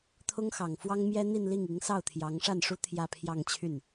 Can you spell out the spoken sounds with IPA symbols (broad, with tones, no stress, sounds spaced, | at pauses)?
t̪ʰ ʊ˥ ŋ x ɑ˨˩ ŋ f w ɑ˥ ŋ m j ɛ˥ n̪ i˥˧ n l i˥˩ ŋ i˧˥ ŋ s ɑ˥˩ ʊ̯ t̪ʰ j ɑ˧˥ ŋ ʂ a˥˩ n ʂ u˥ t̪ʰ j ä˥˧ pʰ j ɑ˥˧ ŋ t͡ɕʰ y˥˩ n